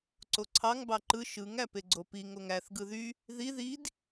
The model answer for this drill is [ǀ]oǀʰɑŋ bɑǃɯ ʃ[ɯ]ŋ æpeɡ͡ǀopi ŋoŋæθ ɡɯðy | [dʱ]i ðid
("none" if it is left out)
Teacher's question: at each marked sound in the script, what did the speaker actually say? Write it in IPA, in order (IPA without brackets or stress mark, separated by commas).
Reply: ǀ, ɯ, ð